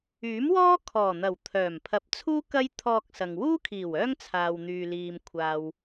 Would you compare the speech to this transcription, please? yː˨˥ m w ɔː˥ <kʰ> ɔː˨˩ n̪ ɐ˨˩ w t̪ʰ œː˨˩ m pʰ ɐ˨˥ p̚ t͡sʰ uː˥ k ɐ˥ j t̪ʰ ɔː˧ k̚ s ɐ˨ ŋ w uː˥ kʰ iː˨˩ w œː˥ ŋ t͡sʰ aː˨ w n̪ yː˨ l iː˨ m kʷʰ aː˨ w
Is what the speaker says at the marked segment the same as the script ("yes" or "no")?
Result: yes